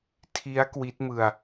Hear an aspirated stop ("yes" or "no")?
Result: yes